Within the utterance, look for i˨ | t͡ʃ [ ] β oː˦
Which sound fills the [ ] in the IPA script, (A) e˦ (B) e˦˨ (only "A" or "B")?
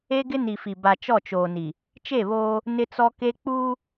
B